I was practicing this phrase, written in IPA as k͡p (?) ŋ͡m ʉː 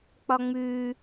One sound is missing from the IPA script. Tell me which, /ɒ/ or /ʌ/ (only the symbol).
ɒ